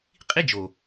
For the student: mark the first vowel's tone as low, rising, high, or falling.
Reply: high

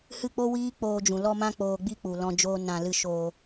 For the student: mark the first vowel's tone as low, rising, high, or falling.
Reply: falling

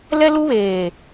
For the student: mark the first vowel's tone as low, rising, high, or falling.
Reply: high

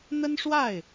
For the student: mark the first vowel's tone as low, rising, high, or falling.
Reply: high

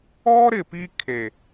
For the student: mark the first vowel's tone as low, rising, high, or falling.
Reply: high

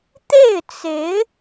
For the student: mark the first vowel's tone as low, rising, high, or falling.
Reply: falling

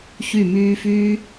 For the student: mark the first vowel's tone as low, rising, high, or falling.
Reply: falling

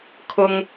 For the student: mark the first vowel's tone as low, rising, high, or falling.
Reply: low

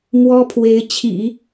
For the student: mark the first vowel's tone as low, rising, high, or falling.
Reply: high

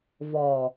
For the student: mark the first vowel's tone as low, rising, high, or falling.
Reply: low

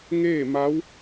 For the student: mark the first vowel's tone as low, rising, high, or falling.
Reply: falling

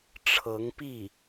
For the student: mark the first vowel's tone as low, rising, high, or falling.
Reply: rising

